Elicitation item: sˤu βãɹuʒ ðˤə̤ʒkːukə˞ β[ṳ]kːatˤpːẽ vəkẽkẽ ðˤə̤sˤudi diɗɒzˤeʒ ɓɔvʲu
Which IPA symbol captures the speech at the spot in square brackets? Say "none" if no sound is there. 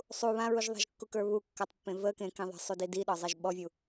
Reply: u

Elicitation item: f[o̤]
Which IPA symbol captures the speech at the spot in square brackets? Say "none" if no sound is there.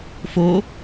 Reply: o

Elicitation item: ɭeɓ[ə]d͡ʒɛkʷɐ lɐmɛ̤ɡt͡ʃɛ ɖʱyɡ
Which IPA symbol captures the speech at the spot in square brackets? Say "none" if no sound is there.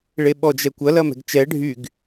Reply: ɔ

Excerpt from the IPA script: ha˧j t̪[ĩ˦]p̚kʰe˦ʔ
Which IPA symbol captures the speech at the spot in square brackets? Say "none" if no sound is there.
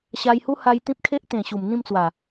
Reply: ĩ˦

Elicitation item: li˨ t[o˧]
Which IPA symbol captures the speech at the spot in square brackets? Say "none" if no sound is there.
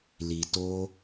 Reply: o˧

